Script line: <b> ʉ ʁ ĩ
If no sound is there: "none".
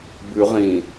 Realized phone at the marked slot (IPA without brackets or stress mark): b